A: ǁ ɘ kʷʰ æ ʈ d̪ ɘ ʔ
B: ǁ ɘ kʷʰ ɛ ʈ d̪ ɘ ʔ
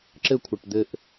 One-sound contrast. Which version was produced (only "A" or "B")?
B